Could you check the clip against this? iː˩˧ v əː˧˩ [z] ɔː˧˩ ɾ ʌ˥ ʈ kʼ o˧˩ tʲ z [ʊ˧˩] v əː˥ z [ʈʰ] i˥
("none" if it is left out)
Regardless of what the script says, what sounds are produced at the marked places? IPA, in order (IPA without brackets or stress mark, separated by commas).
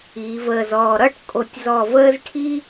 z, ɔ˧˩, ʈʰ